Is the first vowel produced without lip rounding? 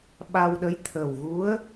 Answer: yes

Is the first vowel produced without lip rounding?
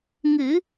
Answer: yes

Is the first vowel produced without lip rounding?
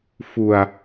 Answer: no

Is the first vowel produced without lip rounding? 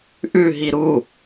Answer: no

